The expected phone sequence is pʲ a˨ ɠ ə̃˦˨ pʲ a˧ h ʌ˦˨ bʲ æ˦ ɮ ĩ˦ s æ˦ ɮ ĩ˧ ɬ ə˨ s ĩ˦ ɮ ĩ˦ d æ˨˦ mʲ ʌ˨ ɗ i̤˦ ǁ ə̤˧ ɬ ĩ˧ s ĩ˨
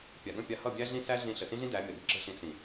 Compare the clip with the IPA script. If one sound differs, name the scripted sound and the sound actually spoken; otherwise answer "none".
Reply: none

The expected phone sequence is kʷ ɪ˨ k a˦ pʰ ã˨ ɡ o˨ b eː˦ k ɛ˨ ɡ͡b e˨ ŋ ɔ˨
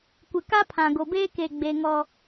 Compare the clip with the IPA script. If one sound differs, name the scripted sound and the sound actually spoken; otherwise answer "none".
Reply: ɛ˨ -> e˨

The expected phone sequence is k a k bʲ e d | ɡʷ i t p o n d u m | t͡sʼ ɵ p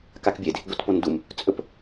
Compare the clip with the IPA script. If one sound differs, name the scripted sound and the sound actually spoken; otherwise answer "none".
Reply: none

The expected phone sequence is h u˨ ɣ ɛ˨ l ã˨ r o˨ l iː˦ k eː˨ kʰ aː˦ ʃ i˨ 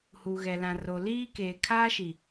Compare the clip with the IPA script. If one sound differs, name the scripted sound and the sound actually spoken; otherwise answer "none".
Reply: none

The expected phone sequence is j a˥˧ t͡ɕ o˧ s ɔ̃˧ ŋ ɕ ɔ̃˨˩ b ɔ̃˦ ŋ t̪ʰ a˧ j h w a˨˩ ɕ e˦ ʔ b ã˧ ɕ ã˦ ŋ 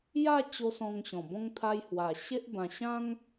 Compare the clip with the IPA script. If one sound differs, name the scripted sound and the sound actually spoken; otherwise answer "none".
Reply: none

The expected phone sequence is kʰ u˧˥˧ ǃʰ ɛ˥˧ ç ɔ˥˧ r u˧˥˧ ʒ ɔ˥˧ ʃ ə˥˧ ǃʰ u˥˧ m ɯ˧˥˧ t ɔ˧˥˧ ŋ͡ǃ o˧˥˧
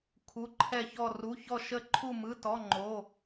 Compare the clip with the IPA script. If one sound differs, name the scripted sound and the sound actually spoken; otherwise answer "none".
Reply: ʒ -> ç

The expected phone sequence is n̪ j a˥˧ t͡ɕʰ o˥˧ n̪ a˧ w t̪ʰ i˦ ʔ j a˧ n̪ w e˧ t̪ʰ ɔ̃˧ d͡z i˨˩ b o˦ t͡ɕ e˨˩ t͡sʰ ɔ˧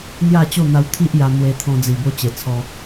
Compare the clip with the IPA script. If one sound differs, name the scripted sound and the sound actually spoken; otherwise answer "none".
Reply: t͡ɕʰ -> t͡ɕ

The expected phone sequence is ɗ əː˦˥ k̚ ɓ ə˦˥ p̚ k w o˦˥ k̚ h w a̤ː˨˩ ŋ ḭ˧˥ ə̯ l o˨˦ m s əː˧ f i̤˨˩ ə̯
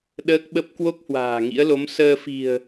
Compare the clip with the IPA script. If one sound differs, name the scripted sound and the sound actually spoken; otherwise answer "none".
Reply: none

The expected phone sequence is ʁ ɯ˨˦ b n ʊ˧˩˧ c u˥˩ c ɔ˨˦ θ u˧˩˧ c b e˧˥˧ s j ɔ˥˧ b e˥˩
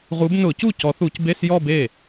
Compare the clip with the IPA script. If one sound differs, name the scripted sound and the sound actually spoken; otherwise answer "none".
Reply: ɯ˨˦ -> u˨˦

